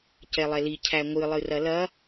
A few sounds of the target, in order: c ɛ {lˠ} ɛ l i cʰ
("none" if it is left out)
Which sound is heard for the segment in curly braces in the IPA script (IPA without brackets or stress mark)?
lˠ